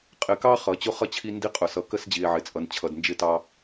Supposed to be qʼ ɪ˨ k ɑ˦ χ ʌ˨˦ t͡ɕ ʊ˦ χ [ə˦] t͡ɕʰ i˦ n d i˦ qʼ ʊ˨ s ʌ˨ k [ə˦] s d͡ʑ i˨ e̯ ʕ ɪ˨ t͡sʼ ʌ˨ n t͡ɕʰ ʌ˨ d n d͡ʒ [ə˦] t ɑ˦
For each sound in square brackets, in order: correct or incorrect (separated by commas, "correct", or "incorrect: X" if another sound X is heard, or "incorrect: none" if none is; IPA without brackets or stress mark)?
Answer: incorrect: ʌ˦, correct, incorrect: ɪ˦